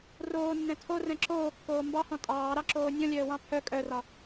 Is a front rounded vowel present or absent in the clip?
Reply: present